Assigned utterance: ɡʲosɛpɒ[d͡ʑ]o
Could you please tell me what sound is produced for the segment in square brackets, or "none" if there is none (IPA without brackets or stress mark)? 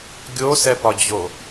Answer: d͡ʑ